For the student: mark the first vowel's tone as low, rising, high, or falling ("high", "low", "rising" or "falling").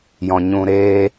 low